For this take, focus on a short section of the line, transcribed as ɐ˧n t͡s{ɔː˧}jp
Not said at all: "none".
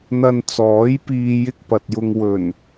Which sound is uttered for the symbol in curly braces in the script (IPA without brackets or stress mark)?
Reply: ɔː˨˥